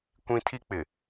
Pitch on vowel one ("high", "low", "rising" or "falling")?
high